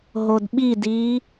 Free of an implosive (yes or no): no